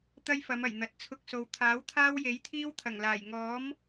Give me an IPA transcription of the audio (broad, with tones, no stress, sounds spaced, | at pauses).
t̪ ɐ˥ j f ɐ˨˧ m ɐ˨˩ j n̪ ɐ˨ t̚ t͡sʰ ʊ˧ k̚ s o˨ w t̪ʰ aː˨˥ w t̪ʰ aː˥ w j e˨˥ j t̪ʰ iː˥ w t̪ʰ ɐ˨˩ ŋ l aː˨˩ j ŋ ɔː˨˥ m